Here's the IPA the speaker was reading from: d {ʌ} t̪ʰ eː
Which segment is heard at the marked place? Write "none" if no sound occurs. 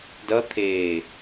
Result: ʌ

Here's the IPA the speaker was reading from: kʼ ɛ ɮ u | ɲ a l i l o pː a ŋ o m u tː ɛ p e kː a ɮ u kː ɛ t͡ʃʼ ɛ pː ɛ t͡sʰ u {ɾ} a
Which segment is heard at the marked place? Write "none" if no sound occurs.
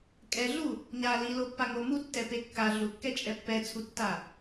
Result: tː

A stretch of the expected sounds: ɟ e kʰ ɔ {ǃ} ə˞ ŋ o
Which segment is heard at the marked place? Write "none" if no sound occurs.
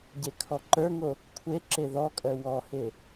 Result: ǃ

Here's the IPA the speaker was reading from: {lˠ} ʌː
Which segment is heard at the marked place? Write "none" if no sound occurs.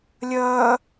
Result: lʲ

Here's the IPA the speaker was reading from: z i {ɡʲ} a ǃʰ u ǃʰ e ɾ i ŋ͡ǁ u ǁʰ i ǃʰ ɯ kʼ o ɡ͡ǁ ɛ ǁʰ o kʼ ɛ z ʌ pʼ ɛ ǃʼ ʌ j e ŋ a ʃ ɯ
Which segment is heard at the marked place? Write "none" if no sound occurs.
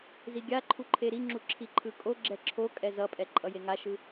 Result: ɡʲ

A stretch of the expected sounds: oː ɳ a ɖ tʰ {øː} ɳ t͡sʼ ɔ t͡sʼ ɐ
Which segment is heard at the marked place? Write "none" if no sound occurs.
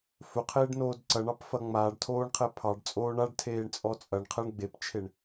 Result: eː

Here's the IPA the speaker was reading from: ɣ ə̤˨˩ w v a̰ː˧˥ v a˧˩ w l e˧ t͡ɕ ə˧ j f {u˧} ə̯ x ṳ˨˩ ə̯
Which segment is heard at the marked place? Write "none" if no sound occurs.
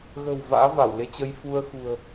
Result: u˧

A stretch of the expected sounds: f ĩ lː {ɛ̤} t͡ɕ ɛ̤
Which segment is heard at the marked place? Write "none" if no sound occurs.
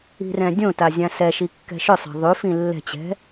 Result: ɛ̤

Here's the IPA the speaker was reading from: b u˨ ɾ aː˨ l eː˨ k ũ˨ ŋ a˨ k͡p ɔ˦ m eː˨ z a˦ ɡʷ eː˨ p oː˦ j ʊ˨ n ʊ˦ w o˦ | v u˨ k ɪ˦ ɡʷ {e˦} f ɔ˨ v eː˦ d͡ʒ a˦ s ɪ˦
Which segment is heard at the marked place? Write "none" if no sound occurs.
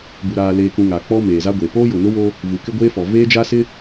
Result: eː˦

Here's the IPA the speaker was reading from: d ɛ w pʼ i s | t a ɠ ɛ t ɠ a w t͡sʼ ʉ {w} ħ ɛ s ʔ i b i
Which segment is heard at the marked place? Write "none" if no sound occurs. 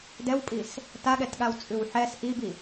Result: w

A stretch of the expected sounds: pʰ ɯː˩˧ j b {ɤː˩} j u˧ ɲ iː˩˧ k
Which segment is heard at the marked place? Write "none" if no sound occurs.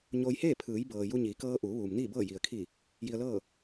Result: ɤː˩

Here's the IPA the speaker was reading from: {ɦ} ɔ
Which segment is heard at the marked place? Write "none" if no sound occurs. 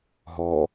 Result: ɦ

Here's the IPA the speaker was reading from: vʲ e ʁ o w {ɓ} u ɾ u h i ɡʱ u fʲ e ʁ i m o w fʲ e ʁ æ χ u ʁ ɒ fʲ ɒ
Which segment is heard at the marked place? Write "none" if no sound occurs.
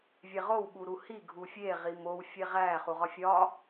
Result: ɓ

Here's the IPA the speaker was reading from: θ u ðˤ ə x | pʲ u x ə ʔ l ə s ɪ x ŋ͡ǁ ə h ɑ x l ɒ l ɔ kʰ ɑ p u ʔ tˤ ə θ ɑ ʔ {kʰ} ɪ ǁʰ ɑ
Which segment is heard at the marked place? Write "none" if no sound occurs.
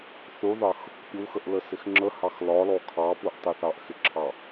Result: x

